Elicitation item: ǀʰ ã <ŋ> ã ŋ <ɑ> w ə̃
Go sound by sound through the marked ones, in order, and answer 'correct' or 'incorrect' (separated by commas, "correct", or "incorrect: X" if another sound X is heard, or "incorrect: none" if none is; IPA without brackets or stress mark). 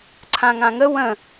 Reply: correct, incorrect: ə